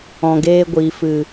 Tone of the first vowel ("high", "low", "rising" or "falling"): low